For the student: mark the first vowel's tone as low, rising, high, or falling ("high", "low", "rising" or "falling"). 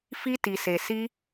high